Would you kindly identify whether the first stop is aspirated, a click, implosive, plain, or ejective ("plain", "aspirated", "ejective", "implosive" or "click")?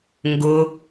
plain